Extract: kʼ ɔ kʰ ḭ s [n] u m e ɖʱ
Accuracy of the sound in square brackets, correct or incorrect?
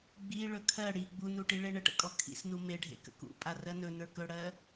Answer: correct